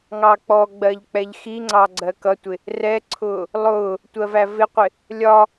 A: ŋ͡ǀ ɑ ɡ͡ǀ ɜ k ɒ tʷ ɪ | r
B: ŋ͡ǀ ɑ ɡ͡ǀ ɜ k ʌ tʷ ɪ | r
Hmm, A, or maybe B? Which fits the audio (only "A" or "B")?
B